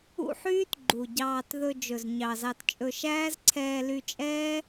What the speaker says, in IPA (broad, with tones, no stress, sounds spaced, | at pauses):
ṵ˦ ħ yː˦ t ɡ͡ǃ u˨ ɟ ɑː˧ t ð ɵ˧ d͡ʒ ɵ˨ z ɲ ɑ˨ z ɑ˧ t t͡ʃʼ ɵ˧ ʃ æː˦ z ǀʰ ɛː˧ l y˧ t͡ʃʼ ɛː˦